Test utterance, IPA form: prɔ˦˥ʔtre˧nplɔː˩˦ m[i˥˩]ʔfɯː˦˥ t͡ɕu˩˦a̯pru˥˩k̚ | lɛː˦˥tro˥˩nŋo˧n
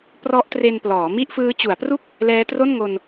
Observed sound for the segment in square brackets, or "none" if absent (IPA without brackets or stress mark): i˥˩